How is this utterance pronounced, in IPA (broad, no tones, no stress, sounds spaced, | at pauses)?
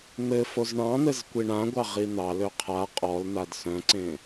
n̪ ɘ f o z ɳ ɑ̃ n̪ ɘ z kʷ i ɳ ã ɡʷ ɑ ʁ i n̪ ɑ l ø qʰ a qʼ ɔ l n̪ a d s œ̃ ǀ ẽ